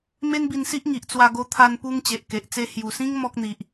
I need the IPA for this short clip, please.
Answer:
m e˦ n b i˧ n s i˦ ʔ ŋ i˨ ʔ t͡s w a˧ ɡ o˧ t̪ʰ a˧ n p u˧ ŋ t͡ɕ e˨ ʔ k e˨ ʔ t͡s e˥˧ h j u˨˩ s ĩ˦ ŋ m ɔ˦ k̚ n̪ i˨ ʔ

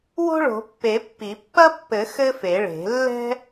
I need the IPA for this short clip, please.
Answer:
w o̤˥ ɭ o̤˨˩˦ pː e˨˩˦ pː i˨˩˦ pː ɐ˥ pː ɘ˨˩˦ x ɘ˥ f e˨˩˦ ɭ e̤˨˩˦ lː ɛ̤˥

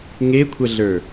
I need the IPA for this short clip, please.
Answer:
ŋ e kʷʰ ɐ ɮ ə˞

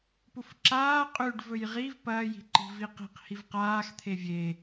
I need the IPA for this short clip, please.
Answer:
p u f ǁ aː qʼ ʉ ɖ v ɵ j ʁ i v p ɐː j i̤ ǃ i̤ v i q i̤ q h i v q aː x t̪ʰ e vʲ e

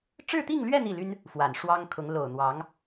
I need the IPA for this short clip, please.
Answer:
ʈ͡ʂ ɻ̩˥˧ t̪ i˥˧ ŋ l ɥ ɛ˥˧ n̪ i˥˩ l y˥ n | f w a˨˩ n ʂ w ɑ˥ ŋ kʰ ʊ˧˥ ŋ l o˨˩ ʊ̯ n̪ w ɑ˧˥ ŋ

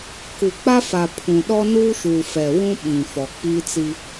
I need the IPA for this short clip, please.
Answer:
k u˨ k͡p a˦ f a˨ pʰ ũ˨ ɗ ɔ˦ n uː˦ ʃ uː˨ f ɛ˨ w ũ˦ ɓ ĩ˨ f ɔ˨ k͡p iː˦ t͡s i˦

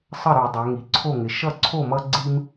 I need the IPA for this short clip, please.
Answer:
sˤ ə˥˩ ɾ ʉ˧˩˧ dˤ ɛ˩˧ ŋ i˩˧ ǀʰ o˥˩ ŋ ɪ˩˧ ʃ ʌ˥˩ ǀʰ o˥˩ m ʌ˦ ɡ͡ǀ i˦ m

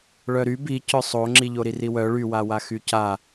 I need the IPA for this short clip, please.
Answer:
ɭ œ ɾ y b i c œ sˤ o ŋ͡ǁ i ʎ o ɾ i r i w œ ɭ y w a w a x y c a

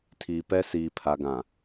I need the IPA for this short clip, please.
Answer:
tʰ iː˨ p ɛ˦ s iː˨ pʰ a˨ ɡ ã˨

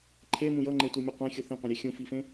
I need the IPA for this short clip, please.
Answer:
ǃʰ e m ũ j ʌ ŋ͡ǃ e tʷ i mʲ u qʷ ẽ xʲ u θ ĩ qʷ ĩ ɾʲ e xʲ ũ f i f ẽ

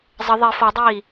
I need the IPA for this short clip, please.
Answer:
zˤ ə ðˤ i f ɔ dˤ iː

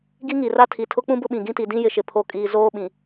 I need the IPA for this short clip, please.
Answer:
ɡ i˦ ŋ i˨ r a˦ tʰ i˨ tʰ ʊ˦ k͡p ũ˦ b ʊ˦ ɓ ĩ˨ ɡ ĩ˦ t i˨ d ĩ˦ j ɪ˨ ʃ ɪ˨ pʰ o˨ kʼ iː˨ z oː˦ ɓ ĩ˨

